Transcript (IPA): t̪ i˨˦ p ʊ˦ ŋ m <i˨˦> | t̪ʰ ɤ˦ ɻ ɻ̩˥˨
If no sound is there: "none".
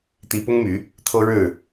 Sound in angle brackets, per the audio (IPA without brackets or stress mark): y˨˦